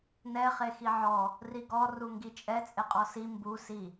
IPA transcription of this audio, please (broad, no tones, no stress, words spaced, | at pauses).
nɛ χexiʕɔ | riɡɔ ruŋɡit͡ʃʼɛ t͡sʼeqʼɔsi mbu si